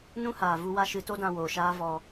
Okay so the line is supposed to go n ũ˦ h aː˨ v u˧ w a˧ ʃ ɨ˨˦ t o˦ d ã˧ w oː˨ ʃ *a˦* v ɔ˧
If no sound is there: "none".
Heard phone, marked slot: aː˦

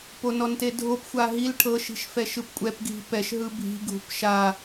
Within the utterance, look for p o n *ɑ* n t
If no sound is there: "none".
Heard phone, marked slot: ɔ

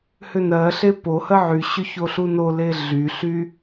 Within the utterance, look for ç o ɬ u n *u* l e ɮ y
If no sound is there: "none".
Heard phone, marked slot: o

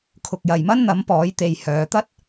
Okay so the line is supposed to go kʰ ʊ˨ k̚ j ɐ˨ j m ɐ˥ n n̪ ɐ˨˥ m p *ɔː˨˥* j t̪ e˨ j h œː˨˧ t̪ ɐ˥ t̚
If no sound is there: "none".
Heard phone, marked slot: ɔː˨˥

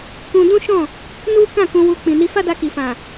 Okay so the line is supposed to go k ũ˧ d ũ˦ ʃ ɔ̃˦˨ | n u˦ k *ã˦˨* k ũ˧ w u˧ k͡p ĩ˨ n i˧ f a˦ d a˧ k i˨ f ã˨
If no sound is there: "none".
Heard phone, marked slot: ã˦˨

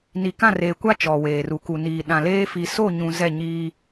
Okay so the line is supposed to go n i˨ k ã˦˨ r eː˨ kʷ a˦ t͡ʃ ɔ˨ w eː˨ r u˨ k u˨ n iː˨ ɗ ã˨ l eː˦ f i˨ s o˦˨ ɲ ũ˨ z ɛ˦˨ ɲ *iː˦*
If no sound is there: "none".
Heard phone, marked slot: iː˦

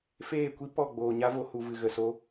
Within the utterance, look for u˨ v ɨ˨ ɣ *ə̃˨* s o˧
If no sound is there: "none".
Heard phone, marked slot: ə˨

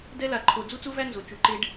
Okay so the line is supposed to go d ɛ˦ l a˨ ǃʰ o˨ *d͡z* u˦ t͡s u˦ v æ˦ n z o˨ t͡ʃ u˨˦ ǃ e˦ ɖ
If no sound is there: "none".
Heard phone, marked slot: d͡z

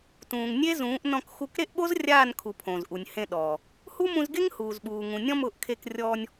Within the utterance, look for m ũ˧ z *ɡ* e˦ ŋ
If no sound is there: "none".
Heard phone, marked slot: ɡ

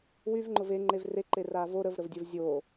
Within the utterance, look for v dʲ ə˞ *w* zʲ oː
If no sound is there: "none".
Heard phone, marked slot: v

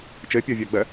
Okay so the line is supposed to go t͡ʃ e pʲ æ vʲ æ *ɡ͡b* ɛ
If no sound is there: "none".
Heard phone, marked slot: ɡ͡b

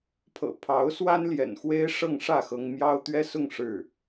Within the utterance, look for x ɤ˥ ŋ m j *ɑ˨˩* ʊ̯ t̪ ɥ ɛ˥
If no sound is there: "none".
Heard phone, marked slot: ɑ˥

